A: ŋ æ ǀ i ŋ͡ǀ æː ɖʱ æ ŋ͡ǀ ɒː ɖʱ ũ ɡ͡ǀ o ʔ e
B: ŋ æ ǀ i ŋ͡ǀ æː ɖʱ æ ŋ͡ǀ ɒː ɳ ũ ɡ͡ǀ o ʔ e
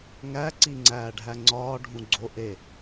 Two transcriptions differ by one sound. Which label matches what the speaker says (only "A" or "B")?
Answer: A